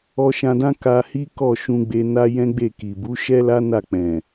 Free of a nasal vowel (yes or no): no